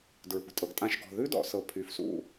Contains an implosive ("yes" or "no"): no